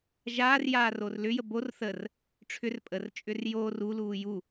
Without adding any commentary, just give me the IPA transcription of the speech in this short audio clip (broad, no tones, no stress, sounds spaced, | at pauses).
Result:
ʒ aː r j aː r o r l ʏ j ə b o r θ ə r | ʈ͡ʂʰ ʏ r pʼ ə r t͡ʃʼ ʏ r j oː r u l uː j u